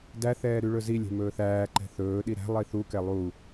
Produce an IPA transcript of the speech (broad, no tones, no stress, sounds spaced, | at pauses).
d æ θ ɛː ɾ y ɭ ɵ z i lʲ ɛ̤ m ɵː θ æː ǃ ɛ̤ θ ɵː ɗ i ɾ æ̤ lˠ i θ u k ɛ lˠ u